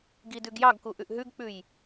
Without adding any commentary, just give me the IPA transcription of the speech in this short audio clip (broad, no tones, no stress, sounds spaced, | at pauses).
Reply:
ɡ i d ʉ ɡ j ɑ ɡ k u ʔ ʉ ʔ ɦ ʉ ɡ k͡p ʉ j